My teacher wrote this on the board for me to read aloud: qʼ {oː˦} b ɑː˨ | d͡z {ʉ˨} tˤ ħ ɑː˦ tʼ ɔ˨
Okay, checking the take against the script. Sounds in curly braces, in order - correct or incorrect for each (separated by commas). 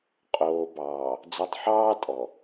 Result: incorrect, incorrect